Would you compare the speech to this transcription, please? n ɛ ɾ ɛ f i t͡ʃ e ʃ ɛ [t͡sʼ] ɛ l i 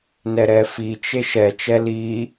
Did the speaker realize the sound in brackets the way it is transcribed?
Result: no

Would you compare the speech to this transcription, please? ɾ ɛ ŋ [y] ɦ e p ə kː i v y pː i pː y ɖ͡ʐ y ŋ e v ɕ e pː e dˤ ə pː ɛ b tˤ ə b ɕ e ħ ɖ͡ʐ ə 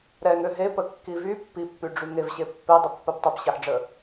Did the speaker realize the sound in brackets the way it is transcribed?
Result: no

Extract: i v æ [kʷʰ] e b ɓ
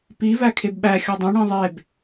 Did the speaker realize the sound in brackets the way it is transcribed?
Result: no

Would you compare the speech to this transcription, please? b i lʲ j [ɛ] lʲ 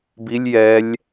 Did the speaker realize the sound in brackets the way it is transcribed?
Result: yes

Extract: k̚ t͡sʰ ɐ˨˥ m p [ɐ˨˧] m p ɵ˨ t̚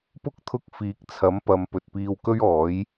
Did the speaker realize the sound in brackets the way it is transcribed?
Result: yes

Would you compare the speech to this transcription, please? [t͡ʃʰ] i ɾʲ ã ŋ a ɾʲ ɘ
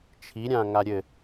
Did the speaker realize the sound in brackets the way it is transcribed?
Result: yes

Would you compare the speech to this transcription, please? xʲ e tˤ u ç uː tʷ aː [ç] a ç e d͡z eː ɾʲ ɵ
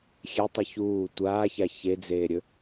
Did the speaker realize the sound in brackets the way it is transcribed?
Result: yes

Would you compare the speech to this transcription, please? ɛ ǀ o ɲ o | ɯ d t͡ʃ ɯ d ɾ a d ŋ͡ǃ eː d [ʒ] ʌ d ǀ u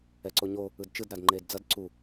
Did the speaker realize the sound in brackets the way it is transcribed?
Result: no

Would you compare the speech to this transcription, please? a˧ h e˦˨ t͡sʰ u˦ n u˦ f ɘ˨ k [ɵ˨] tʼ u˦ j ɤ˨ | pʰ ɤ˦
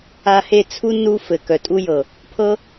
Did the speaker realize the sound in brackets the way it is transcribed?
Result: no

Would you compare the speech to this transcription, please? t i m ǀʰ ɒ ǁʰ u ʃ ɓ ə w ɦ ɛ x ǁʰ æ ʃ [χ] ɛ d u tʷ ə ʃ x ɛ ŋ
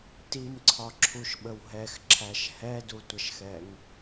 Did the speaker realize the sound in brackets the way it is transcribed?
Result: no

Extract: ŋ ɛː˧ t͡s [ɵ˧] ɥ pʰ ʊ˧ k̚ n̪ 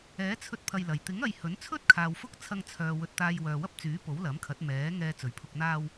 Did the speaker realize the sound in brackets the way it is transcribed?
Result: no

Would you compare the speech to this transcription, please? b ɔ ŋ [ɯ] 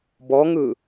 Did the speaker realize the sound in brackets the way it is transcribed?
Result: yes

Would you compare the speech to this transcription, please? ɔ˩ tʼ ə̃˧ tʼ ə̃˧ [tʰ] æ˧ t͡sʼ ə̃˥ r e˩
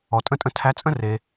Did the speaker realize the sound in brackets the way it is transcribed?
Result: yes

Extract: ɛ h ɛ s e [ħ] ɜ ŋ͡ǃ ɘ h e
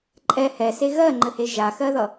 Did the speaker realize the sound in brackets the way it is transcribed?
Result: no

